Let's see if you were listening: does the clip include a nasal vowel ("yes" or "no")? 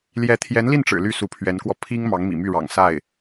no